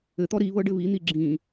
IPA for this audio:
ɘ t̪ ɔ ɾ i β ɤ ɖ ɘ β i n̪ i ɡ͡ǁ ĩ

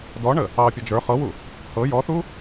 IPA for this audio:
d ɔ ɳ ə | ɑ pʲ ɒ d͡ʒ ə˞ χ ɤ w u | h ɤ j ɔ θ u

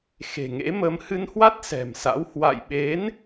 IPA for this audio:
x e̤˨˩ ŋ ḛ˧˥ m ə˧ m h ɨ˧ n h w a˦˥ t̚ s ɛ̤˨˩ m s a̰˧˥ w h w a̰˧˨ j ɓ e˨˦ n

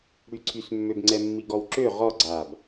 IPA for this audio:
ɽ y ǀʰ y s mː ø b ŋ͡ǀ ɛ mː i ɡ ɔ w ǁ ø ʁ ɔ ɡ͡ǀ a b

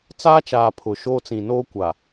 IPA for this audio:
t͡s aː˦ t͡ʃ aː˨ pʰ ʊ˨ ʃ oː˦ t͡s ĩ˨ n oː˦ kʷ a˨

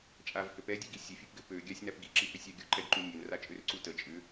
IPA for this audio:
t͡ʃʼ a v h ø p ɛ dʲ u ɡ i sʲ ɘ fʲ u p ɡ ɘ p ø ɡʲ a sʲ n a p ɡ i ǁ i h ʏ sʲ a ɡʲ u ǃ ɛ ɡ ǃ u nʲ ø n r a t͡ʃʼ ø r ǀ u t ə t͡ʃʼ ʏ

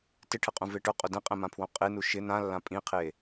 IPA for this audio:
t ɪ ʈʰ ɪ qʼ ũ v e ʈ ʊ qʼ ʊ d ɛ̃ qʼ ɛ̃ m ã pʰ w õ qʼ e n u ʃ ɪ n ã lː ã pʼ ĩ qʰ e

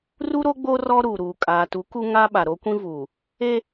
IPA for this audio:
r u˦ ɾ o˦ ɡ͡b o˦ r ɔ˦ ɾ uː˨ ɾ uː˨ kʼ aː˨ t u˨˦ k u˦ ŋ a˦ ɓ a˨ ɾ o˦ kʷ ĩ˦ v uː˨ | e˦

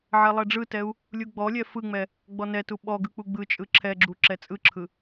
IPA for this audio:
ʕ ɛ lˠ ɛ ɖ͡ʐ ɯ t ɛ u̯ | lʲ u ɡ͡b ɔ lʲ ɛ f ɯ ŋ͡m ɛ | ɡ͡b ɔ n ɛ t u ɓ ɔ ɡ ɯ k͡p u ɡ͡b ɯ t͡ʃʼ ɯ ǁʰ ɛ ɡ͡ǁ u ǁ ɛ t͡sʼ ɯ ǁʰ ɯ

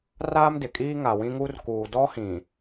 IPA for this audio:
r aː˦ m d ɪ˨ kʼ iː˦ ŋ a˨ w ĩ˦ ŋ u˦ r k uː˨ d ɔ˦ h ĩ˨

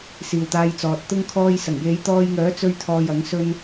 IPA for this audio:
s iː˨ w t̪ aː˧ j t͡s ɔː˨ t̚ t̪ ʊ˥ ŋ kʰ ɔː˧ j s ɐ˨˩ ŋ j e˨˧ j t̪ ɔː˧ j ŋ œː˨˥ t͡s ɵ˧ ɥ t̪ʰ ɔː˨ j ɐ˨˥ ŋ s ɵ˥ n

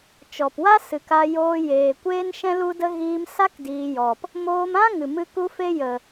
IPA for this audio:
t͡ʃ ɔ˨ p w a˦ s ɨ˨ k a˧ j oː˧ j eː˨ kʷ eː˦ n ʃ ɛ̃˦ l u˦ d ə˦ ɣ iː˧ m s a˦ k d iː˧ j ɔ˨ p | m oː˧ m ã˦ ŋ ɨ˨ m ɨ˧ k u˦ f e˦ j ə˨

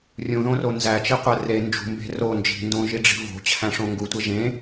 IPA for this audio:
rʲ ũ ð õ r o n z æ t͡ʃ i qʷ æ r e n d͡ʒ ṳ m b e̤ r o n d͡ʒ i̤ n d õ ʒ i ɖ͡ʐ i̤ v o̤ t͡ɕʰ æ̃ ʂ õ ŋ ɡ u tʷ e ʒ ẽ

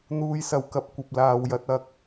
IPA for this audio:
n̪ uː˧ j s ɐ˨ w k ɐ˧ p̚ kʷ ɐ˨ p̚ l aː˨ w j ɐ˨˥ t̚ ɐ˨ k̚

